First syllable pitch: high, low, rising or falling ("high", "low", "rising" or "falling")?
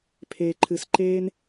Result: low